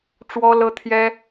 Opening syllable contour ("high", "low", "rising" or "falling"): high